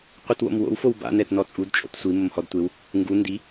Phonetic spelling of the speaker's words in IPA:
qʷ i t w o̰ m w o̰ w f o w b a̰ n ɛ t n ɔ t͡sʼ u d t͡ʃʼ o̰ t sʷ i m o m h ɔ d tʷ e w | ŋ ɡ u n d i

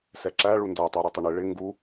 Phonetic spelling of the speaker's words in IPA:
s ɛ ǁ æ ɭ u n d æ tˤ ə˞ ɾ i tˤ ɪ ɳ ɪ ɭ ɪ ŋ ɡ u

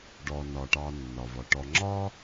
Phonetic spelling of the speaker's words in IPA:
ɖ ɔ˩ n ɒ˩ ʈ ɑ˨ nː ɒ˩ v ɒ˩ ʈ ɔ˨ ŋ͡ǁ ɒ˥

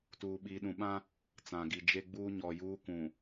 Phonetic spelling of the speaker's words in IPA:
t uː˨ ɓ iː˨ ɗ ũ˨ ɓ ã˦ | t͡s ã˨ ɡ i˨ d͡ʒ e˦ ɡ͡b uː˦ ɲ ɔ˨ j uː˦ kʷ ũ˨

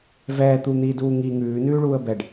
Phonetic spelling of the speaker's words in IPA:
v ɛː t̪ u n̪ iː d uː ŋ i ŋ ʉː n ʉː ɭ uː ə̯ b ɛ ɖ

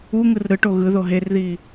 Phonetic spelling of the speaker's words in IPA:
u ŋ ɯ r ɾ ɯ ʈ o ɣ ɯ ð o ɦ e r ð i

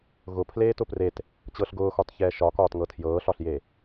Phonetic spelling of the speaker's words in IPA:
ɣ ʊ pʰ l eː t ʊ p r e t | t͡ɕ ɤ ɬ ɡ ʊː x ɒ t ç ɛː ʃ ɒ k ɒː t ŋ ɤ tʰ j ɤː ɬ ɒ ɬ j e

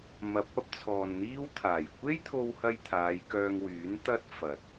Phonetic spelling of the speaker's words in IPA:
m ɐ˨ p̚ ɐ˥ p̚ t͡sʰ ɔː˨ n n̪ iː˥ w t̪ʰ aː˨˩ j kʷ e˥ j t̪ʰ o˧ w h ɐ˧ j t̪ʰ aː˨˧ j k œː˧ ŋ w yː˨˥ n t̪ ɐ˥ t̚ f ɐ˨ t̚

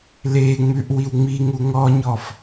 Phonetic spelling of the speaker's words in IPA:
l e ŋ͡m ʉ ʔ w i w ŋ͡m i ŋ u ŋ ɔ ɲ ɔ f

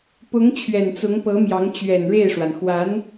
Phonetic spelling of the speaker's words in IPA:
p ʊ˧˥ ŋ t͡ɕʰ ɥ ɛ˨˩ n t͡s ʊ˧˥ ŋ p ɤ˧˥ m j ɑ˧˥ ŋ t͡ɕ ɥ ɛ˨˩ n ɻ e˥˩ ɪ̯ ʂ w a˩ n x w a˧˥ n

